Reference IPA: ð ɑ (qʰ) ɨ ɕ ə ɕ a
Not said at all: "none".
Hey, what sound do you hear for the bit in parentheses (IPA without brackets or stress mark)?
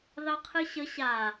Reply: qʰ